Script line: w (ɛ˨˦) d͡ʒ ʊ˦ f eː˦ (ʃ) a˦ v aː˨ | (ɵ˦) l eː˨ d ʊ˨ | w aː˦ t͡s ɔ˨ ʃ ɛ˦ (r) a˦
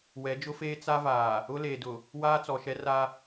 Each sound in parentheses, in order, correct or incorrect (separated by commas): correct, incorrect, incorrect, correct